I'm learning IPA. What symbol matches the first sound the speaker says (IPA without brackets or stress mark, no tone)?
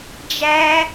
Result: d͡ʒ